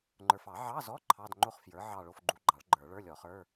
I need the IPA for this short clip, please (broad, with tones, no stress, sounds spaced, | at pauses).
ŋ͡ǃ ə˞˨ f ɑ˨˩˦ ʕ ɑ˧˥˧ z ɔ˧˥˧ ǃʰ ɑ˧˥˧ d ŋ͡ǃ o˥˧ χ f j ə˞˩˥ ʕ ɑ˥˧ ɭ o˧˥˧ f ɡ͡ǃ u˧˥ ɡ͡ǃ ɑ˨˩˦ ɭ ɡ͡ǃ ə˞˨˩˦ ɭ ə˞˧˥˧ lʲ ɔ˨˩˦ χ ə˞˧˥˧